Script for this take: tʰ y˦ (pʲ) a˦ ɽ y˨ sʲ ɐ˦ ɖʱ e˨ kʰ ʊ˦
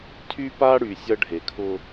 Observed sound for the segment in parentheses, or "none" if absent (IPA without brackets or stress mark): p